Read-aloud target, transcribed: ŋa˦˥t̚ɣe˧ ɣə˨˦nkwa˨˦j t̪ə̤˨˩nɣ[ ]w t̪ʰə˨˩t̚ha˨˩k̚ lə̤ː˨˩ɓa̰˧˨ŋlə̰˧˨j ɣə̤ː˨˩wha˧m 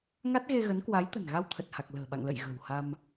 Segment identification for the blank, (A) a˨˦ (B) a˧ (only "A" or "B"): B